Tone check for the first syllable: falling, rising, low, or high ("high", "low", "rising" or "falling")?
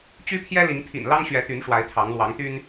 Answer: high